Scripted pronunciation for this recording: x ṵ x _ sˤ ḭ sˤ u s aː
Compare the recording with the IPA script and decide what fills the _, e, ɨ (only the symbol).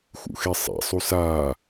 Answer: e